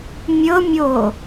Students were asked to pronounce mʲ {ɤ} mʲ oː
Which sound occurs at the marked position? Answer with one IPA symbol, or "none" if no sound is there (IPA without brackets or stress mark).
ɤ